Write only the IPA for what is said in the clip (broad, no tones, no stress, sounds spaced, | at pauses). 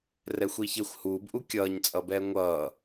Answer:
r ɛ xʷ iː ç e xʷ h uː b ʔ u kʲ ʌː ɲ t͡sʼ ʌ b ɛː ŋʷ ʌː